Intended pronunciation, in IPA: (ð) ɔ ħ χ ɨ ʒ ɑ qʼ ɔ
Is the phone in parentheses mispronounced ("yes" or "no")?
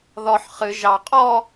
no